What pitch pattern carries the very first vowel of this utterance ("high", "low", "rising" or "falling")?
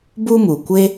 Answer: high